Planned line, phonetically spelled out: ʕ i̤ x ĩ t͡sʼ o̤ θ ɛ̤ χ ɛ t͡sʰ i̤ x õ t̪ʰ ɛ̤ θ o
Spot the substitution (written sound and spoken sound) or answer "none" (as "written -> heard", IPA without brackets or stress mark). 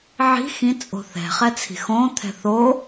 none